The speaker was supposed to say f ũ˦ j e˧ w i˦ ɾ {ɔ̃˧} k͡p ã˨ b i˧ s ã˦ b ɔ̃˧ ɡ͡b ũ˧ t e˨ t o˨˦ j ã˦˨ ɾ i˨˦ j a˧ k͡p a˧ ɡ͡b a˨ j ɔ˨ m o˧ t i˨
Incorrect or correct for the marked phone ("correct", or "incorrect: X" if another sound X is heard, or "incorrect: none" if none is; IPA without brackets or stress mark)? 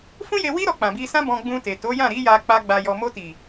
incorrect: ɔ˧